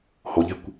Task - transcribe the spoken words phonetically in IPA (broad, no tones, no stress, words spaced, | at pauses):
hoʎe̤kʷ